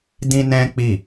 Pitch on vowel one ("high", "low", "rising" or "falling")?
high